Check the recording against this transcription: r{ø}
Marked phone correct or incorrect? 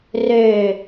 correct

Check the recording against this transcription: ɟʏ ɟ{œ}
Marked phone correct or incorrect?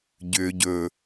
incorrect: ɵ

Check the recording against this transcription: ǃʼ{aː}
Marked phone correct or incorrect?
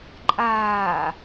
correct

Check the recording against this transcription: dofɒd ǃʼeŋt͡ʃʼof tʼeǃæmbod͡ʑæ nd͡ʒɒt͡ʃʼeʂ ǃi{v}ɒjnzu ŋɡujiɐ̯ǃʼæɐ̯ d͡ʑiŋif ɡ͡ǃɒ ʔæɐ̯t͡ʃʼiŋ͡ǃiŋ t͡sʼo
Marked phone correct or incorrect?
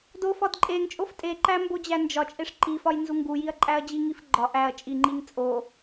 incorrect: f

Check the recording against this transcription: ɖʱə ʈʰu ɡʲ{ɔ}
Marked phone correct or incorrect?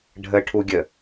incorrect: ə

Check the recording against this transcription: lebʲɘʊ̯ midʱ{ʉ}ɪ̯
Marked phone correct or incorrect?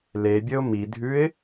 correct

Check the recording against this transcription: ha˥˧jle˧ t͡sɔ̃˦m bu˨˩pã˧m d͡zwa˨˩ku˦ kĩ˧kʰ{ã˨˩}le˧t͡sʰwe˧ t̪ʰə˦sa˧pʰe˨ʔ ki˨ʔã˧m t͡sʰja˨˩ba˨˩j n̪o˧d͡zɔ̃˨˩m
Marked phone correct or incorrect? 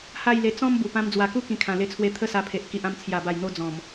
correct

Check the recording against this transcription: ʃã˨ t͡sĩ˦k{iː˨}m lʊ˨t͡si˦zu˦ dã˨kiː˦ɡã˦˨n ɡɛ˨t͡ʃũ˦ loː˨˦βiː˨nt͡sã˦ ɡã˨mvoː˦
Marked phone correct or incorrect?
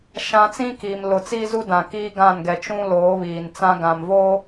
correct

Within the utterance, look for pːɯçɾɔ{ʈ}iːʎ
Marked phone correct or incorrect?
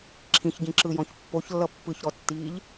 incorrect: tː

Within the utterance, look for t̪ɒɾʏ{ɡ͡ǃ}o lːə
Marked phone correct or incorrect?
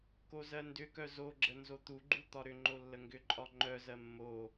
incorrect: ŋ͡ǃ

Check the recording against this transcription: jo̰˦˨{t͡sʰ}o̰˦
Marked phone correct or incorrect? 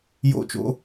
incorrect: t͡ʃ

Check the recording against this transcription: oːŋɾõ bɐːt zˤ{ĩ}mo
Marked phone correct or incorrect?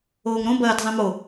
correct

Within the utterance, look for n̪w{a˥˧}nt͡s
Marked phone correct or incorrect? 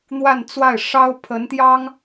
correct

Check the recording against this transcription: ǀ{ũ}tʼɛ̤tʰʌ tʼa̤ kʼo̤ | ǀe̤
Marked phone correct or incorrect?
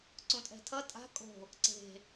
correct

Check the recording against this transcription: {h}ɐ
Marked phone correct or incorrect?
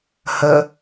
correct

